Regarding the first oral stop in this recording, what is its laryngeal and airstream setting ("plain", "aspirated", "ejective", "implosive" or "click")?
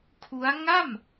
aspirated